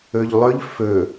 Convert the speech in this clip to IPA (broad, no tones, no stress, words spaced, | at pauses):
ɵʎlˠɵʎ fɵ